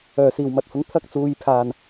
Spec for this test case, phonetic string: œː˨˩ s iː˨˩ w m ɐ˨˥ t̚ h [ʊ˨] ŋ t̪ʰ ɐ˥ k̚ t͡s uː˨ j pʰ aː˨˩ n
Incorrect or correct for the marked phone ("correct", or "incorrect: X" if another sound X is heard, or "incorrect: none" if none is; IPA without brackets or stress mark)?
incorrect: ʊ˨˥